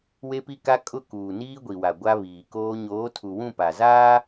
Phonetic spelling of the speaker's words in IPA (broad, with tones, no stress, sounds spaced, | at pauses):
w e˦ p i˦ k a˦ kʼ ʊ˦˨ k uː˨ n iː˦ ɡʷ i˨ w a˨ ɡʷ a˦ β iː˨ k oː˦ ɲ oː˨˦ tʰ u˨ w ũ˦˨ p a˨ z aː˦